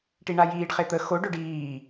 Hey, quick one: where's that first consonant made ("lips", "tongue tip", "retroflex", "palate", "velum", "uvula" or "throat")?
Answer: retroflex